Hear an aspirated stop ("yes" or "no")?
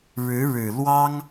no